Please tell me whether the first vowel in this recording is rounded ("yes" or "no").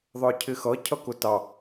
no